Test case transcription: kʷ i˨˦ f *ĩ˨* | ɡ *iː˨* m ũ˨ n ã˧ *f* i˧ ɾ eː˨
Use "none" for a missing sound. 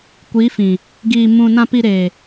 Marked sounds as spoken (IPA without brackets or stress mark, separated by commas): ĩ˨, iː˨, p